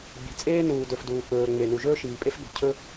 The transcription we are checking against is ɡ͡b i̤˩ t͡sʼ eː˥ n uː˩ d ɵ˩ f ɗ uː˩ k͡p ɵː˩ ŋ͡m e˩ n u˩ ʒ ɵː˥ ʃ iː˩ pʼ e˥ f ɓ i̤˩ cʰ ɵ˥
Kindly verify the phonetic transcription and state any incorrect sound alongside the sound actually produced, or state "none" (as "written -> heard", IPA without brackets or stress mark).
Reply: ɗ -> d